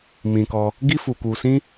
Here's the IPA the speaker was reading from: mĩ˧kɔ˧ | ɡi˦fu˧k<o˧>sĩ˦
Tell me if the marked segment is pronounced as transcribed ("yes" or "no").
no